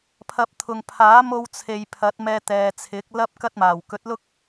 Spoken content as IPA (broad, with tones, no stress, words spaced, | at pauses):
pʰɐ˨p̚ t̪ʰʊ˨ŋpʰaː˨˥ mo˧wt͡sʰe˨j pʰɐ˨˥t̚mɛː˧t̪ɛː˨t͡sʰɪ˨˥k̚ lɐ˥p̚kɐ˥t̚maː˨˩w kɵ˨˥t̚lʊ˥k̚